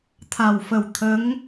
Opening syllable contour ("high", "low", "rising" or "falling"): low